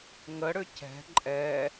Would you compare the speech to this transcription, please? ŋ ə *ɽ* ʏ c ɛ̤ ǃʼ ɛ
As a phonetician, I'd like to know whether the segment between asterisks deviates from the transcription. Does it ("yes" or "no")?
no